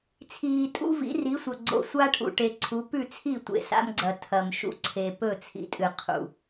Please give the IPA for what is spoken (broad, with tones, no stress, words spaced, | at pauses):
t͡sʰiː˨tʼṵ˦ vḭ˨˦ri˨˦sʷɐ˨ ɡ͡ǀo̰˨sʷa˦ʈʰṵ˨ ʈe˨ǀʰu˨˦ pʉ˦˨t͡sʰi˦˨ tʷḛ˨sa̰˦mɡ͡ǀɐ˨ tʰɐ˨m ʃṵ˦ǀʰe˨ pɵ˦˨t͡sʰḭ˨tʼɨ˨ qʰṵ˨